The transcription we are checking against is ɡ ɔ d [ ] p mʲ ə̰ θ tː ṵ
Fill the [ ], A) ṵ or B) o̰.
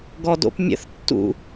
B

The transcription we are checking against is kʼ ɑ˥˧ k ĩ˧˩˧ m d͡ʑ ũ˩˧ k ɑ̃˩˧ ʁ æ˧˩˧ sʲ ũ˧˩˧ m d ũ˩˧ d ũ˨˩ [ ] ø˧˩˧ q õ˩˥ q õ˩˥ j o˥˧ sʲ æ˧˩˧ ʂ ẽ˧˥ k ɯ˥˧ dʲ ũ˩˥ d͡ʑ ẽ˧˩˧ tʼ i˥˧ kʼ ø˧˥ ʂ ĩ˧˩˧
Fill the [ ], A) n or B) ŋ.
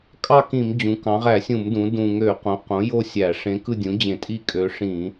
B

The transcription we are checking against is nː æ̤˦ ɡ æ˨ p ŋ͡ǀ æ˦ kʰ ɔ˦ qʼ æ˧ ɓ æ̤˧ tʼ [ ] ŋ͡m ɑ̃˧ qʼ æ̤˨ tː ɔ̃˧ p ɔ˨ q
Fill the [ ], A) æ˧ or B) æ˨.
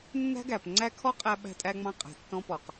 A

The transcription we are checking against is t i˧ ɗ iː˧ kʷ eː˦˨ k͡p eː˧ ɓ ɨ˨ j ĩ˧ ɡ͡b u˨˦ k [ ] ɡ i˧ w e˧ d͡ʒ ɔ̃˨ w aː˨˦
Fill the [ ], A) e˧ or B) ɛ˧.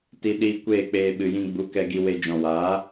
B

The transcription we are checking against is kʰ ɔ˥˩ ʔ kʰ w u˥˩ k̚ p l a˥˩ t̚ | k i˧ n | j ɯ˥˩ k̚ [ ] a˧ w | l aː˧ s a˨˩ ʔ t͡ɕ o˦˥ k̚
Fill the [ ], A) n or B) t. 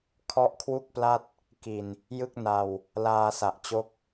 A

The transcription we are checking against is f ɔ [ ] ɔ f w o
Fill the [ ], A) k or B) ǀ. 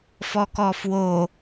A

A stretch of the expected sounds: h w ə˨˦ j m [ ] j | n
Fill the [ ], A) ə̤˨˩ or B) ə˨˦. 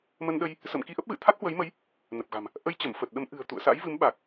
B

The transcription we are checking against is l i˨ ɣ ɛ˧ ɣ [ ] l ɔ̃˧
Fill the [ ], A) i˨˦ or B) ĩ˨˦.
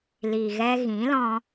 B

